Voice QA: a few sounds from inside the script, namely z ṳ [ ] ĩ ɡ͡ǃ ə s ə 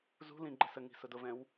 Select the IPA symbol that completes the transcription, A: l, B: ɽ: A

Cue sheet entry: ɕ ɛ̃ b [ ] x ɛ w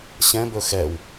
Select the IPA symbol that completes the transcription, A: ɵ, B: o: A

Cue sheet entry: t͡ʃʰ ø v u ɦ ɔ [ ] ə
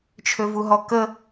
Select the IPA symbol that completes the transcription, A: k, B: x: A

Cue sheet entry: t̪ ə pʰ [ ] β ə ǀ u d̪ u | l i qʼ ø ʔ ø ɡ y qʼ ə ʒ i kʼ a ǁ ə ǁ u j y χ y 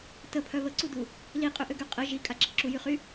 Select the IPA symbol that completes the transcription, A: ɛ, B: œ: B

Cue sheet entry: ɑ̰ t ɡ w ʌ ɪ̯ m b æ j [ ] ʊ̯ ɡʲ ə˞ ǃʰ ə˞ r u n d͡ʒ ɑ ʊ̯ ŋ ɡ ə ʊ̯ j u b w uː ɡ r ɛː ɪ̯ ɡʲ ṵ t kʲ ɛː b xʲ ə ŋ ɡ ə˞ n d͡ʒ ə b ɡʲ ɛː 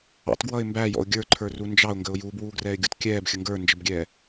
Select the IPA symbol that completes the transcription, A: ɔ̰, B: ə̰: A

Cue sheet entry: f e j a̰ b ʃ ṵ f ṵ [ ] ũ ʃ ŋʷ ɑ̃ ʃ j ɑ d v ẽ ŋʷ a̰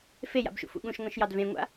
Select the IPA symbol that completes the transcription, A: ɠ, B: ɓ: A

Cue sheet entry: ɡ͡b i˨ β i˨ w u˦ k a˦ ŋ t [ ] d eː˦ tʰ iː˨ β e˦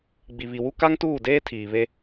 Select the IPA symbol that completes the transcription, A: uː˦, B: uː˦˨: B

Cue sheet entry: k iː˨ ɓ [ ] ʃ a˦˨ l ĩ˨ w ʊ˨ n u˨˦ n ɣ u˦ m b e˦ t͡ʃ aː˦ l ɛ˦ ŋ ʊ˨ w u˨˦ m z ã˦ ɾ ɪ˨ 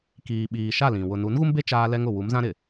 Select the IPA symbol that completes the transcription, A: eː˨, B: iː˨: B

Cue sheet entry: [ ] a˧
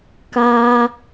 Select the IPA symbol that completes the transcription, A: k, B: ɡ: A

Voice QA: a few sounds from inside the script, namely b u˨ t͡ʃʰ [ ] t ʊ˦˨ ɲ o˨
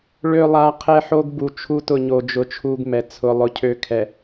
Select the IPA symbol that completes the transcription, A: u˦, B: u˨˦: A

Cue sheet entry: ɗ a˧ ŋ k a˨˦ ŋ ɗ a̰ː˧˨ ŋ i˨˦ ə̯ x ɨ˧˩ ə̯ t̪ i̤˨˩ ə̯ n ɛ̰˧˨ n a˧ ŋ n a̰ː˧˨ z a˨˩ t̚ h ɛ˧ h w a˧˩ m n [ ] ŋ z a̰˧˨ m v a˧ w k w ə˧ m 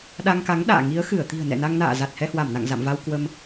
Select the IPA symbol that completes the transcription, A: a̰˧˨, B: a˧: A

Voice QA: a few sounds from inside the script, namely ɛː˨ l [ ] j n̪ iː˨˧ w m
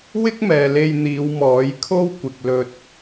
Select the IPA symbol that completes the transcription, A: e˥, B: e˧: B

